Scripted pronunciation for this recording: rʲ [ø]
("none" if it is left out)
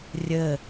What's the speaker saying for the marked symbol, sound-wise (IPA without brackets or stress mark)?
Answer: ə